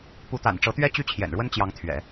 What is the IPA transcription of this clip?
p u˧˥ t̪ a̰˨˩ n ʈ͡ʂ ɤ˧˥ t̪ ɥ ɛ˥ t͡ɕ y˥ t͡ɕʰ j ɛ̰˨˩ n ɻ w ə˥ n t͡ɕ j ɑ˧˥ ŋ t̪ʰ ɥ ɛ̰˨˩˦

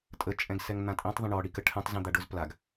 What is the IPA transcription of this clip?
tʼ ə t͡ʃʼ ɛ̃ ɡ s ɛ ŋ n̪ ã tʼ ĩ tˤ ðˤ ə̃ ɳ ɔ ɽ i k ə ʈʰ ɛ̃ tˤ z ĩ d̪ a ɖ ʊ z p l a ɡ

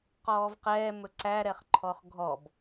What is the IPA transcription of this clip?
q ɔː v q ɛː m ɵ ǀ æ ɾ ɛ χ ǃʰ ɔ χ ɡʱ ɔ b

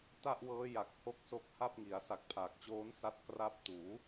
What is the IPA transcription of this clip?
t a˥˩ ʔ w ɤː˦˥ j a˨˩ k̚ h o˦˥ k̚ s o˦˥ k̚ h a˥˩ p̚ ŋ i˩˦ a̯ s a˨˩ k̚ pʰ aː˨˩ k̚ t͡ɕ oː˦˥ n s a˦˥ t̚ k r a˦˥ p̚ t uː˩˦

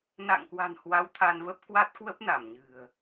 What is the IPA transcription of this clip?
n a̰˧˨ ŋ k w a̤˨˩ n h w a˨˦ w t̪ʰ a˧ n v ə˦˥ p̚ k w a˦˥ t̚ k w ə˦˥ p̚ n a˧˩ m ɲ ɨ̤˨˩ ə̯

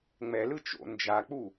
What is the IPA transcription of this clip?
ŋ͡m ɛ l ɯ t͡ʃ o̰ n d͡ʒ a k͡p u

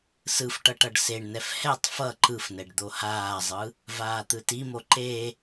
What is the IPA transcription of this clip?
s ɯ f ʈ ʌ ʈ ʌ ɖ s e ɳ n ɛ f h ɛ tˤ f ʌ ǃ ɯ f n ɛ ɖ d̪ o h aː zˤ ɯ | v aː t̪ ɯ t i m o ǃ e

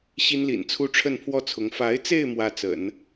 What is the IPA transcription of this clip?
ɕ i˥ n l ḭ˨˩ n t͡sʰ u˥ ʈ͡ʂʰ ə˥˧ n pʰ w ɔ˥˩ t͡sʰ ʊ˧˥ ŋ f a˧˥ ɪ̯ t͡s e˥˧ ɪ̯ m w ä˥˩ t͡s ə̰˨˩˦ n

